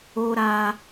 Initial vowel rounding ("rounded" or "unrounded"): rounded